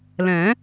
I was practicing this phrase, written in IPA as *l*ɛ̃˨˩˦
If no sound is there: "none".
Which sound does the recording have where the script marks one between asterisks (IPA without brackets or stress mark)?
l